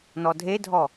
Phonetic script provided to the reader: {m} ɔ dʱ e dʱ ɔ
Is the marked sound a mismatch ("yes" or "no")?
yes